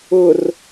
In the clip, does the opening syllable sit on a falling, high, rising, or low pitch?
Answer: low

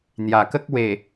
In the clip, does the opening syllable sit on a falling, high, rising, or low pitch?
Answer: low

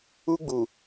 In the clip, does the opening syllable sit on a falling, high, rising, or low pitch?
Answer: high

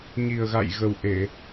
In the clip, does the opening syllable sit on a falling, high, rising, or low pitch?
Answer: low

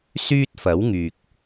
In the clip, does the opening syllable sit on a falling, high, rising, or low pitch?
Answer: high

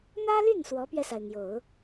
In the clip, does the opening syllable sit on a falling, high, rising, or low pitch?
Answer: high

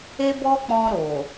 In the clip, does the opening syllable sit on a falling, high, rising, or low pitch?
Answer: high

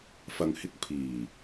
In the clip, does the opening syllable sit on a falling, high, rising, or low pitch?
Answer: low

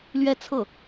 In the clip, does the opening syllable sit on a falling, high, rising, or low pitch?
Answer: falling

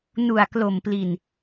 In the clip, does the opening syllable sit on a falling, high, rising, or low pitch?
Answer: low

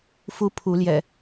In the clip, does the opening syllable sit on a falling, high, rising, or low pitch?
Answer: high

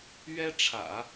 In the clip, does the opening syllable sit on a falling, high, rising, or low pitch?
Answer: high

